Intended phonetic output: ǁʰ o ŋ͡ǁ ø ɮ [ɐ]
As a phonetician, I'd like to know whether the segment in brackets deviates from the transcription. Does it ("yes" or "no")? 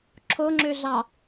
yes